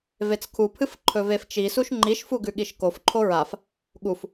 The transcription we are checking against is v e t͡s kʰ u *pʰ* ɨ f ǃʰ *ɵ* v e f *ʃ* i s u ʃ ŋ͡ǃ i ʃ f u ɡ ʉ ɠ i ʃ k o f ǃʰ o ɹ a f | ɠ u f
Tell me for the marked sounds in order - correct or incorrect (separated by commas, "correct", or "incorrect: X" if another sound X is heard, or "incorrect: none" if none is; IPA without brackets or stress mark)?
correct, correct, incorrect: t͡ʃ